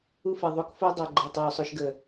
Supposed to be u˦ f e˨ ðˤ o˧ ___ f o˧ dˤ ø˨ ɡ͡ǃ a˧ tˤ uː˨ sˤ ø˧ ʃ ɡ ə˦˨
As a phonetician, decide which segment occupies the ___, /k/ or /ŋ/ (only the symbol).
k